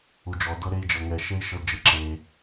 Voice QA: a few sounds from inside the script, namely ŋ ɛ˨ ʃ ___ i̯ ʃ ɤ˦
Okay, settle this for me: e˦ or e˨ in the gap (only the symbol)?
e˦